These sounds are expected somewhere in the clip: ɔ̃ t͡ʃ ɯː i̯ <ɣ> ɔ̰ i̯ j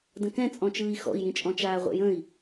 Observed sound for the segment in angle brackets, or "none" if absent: x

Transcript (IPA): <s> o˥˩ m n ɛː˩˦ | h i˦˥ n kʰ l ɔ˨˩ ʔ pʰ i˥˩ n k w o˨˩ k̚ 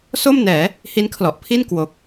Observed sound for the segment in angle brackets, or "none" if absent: s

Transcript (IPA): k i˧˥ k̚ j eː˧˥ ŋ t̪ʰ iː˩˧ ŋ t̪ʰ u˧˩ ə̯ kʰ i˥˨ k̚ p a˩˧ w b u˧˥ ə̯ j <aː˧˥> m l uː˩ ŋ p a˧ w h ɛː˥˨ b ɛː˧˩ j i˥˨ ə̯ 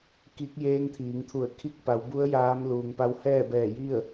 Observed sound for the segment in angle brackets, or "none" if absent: aː˧˥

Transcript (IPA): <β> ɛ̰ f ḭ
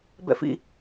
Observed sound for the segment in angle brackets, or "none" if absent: b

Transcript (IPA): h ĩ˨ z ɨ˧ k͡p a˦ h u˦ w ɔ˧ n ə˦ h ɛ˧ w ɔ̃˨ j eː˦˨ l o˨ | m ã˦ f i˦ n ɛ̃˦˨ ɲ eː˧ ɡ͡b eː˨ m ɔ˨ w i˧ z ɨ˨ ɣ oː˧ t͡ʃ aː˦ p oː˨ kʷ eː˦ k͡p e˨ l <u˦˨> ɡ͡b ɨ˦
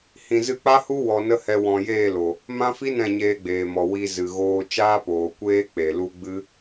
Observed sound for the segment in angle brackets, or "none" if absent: u˦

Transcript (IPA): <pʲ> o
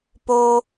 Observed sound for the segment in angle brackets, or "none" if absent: p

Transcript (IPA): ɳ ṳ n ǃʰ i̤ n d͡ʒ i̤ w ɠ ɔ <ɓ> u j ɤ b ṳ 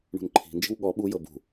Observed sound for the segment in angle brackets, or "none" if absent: ɓ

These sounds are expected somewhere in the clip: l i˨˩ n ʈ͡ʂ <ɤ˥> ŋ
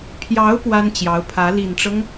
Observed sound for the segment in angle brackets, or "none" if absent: ɤ˦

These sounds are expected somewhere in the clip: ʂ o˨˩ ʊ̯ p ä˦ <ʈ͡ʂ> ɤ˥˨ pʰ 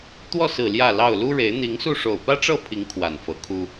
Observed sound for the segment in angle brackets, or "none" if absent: ʈ͡ʂ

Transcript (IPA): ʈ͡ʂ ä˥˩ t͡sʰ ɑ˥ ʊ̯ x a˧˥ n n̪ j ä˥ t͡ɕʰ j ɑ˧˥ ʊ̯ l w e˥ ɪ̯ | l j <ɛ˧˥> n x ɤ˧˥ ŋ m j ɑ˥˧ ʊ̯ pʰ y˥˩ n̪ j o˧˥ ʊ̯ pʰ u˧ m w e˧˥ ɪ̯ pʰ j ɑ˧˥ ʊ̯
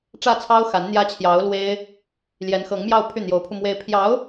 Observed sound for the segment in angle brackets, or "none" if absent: ɛ˧˥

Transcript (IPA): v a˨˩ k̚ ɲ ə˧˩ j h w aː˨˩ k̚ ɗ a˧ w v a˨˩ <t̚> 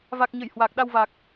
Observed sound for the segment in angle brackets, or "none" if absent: k̚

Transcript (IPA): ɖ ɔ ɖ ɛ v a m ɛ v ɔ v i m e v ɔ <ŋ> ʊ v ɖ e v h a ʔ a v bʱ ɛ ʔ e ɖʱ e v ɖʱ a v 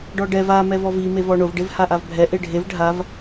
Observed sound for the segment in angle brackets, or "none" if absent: ɳ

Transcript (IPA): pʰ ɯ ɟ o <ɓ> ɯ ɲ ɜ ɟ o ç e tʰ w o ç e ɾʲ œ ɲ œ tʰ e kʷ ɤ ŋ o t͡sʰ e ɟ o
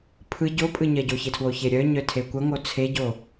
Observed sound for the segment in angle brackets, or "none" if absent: pʼ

